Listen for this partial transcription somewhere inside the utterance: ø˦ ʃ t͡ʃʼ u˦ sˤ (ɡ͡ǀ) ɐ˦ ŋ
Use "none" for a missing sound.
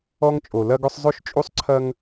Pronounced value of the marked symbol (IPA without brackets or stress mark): ǀʰ